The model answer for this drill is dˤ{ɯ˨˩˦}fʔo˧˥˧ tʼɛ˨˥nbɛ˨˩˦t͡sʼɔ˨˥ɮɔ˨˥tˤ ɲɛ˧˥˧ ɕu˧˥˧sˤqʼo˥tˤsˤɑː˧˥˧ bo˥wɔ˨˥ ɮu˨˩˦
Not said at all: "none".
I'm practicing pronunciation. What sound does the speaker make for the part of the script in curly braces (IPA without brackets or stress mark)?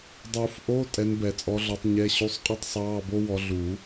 u˨˩˦